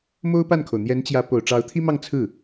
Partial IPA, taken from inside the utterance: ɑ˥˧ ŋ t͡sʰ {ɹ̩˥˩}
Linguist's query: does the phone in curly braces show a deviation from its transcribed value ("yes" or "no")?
no